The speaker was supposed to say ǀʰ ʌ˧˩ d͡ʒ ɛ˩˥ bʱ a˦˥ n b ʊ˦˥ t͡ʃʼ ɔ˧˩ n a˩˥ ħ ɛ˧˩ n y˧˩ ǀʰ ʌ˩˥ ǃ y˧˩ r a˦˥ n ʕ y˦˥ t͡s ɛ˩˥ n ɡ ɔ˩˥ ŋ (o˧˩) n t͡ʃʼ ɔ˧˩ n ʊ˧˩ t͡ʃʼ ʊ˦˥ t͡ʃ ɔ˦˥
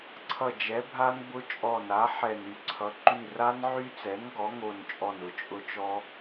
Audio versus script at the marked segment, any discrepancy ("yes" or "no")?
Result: no